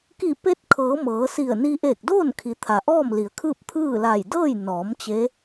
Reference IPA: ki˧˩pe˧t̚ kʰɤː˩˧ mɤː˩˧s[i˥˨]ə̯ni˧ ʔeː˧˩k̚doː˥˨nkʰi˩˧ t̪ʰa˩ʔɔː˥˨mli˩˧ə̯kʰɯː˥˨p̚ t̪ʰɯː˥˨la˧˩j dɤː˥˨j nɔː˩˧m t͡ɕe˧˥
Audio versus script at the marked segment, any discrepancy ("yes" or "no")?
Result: yes